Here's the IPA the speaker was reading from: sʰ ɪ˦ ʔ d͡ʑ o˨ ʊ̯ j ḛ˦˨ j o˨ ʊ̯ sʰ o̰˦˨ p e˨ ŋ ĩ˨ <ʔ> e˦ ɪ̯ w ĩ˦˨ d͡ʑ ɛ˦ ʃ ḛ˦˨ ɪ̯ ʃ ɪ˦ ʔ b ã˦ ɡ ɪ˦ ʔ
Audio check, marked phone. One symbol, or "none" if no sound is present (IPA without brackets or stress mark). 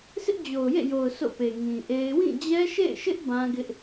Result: ʔ